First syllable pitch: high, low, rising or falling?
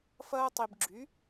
high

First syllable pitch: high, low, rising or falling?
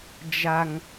low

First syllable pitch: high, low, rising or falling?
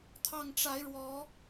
low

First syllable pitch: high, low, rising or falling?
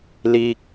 high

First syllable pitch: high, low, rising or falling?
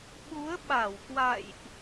rising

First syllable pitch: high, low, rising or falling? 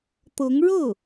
rising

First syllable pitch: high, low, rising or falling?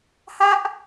falling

